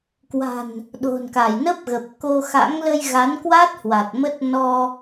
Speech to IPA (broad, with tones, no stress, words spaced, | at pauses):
kwa̤˨˩n | ɗo̤˨˩nka˧˩jnə˦˥p̚ɣə˨˩p̚ ko˧xa̰˧˥ŋ lə˧jɣa˨˦nkwa˦˥t̚ hwa˨˩t̚ mə˦˥t̚ nɔ˧